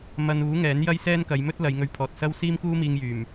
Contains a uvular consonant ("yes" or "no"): no